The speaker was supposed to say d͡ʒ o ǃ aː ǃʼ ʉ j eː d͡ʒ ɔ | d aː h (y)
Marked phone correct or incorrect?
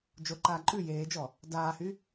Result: correct